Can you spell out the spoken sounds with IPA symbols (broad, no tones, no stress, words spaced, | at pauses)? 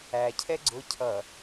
æcʰɛ ɡ͡ǀʊ cʰʌ